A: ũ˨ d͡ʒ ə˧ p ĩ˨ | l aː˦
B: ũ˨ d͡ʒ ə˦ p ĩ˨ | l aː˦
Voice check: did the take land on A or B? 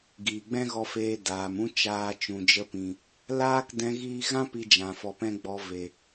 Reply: A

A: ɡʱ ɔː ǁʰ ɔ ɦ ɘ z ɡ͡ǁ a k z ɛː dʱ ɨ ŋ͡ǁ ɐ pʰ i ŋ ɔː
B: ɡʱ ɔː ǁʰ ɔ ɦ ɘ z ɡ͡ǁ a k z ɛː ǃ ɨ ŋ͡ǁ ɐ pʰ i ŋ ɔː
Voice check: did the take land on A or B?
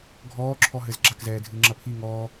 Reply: A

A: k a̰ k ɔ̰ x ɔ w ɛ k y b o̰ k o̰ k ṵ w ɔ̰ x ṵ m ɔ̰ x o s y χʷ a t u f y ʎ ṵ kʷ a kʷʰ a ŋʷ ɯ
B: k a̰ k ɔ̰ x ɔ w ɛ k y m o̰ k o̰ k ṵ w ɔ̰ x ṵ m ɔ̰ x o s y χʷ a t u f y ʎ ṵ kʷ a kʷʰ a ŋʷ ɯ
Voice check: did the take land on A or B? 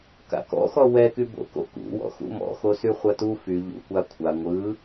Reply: A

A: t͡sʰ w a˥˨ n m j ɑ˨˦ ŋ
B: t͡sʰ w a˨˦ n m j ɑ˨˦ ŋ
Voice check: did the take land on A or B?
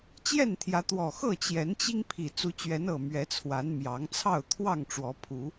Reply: B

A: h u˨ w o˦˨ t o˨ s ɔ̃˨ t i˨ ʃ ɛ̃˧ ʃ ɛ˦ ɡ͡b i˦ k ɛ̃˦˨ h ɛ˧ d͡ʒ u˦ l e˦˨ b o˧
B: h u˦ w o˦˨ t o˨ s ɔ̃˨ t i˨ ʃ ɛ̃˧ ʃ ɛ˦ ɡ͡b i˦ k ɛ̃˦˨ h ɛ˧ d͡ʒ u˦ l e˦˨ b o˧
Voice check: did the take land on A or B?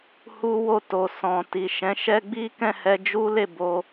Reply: B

